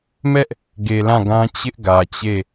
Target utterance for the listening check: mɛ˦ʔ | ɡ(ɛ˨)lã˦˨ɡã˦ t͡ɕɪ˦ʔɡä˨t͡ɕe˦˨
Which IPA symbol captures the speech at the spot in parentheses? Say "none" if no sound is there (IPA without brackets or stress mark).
e˨